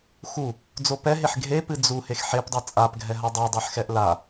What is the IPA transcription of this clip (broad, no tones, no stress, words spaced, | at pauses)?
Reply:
xu | d͡zopɛɦeħ ɡʱepɨ d͡zu hexħepdˤɨ t͡sʼapɡʱɛɦa dˤodˤeħxɛʔ la